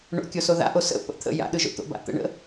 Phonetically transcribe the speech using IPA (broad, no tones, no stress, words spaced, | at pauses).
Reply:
ɳo̰kʲoso ða̰ʔo sə̰ pə̰ t̪ʰə̰ ja̰ɗɯʒo̰ t̪o̰ba̰t̪ə̰ɳə̰